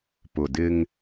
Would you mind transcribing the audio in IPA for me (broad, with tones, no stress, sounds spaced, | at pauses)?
p ʊ˨ d ɪ˦ ŋ